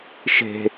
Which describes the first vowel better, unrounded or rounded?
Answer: unrounded